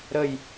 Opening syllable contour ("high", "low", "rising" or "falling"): falling